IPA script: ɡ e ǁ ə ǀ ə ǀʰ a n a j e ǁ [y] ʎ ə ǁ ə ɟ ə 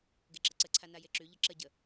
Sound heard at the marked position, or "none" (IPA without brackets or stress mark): y